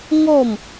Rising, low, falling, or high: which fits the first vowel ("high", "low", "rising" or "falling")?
falling